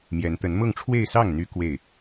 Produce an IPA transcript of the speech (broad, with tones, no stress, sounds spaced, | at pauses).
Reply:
m j ɛ˧˥ n t̪ ə˧˥ n m ʊ˥˧ ŋ ʈ͡ʂʰ w e˥˧ ɪ̯ s ɑ˥˩ ŋ n̪ y˧˥ k w e˥˩ ɪ̯